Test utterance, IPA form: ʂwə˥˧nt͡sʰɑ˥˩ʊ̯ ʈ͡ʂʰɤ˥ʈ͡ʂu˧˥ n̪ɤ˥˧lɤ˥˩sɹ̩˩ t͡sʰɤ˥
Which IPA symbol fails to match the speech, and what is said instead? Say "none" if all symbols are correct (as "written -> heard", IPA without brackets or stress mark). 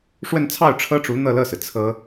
none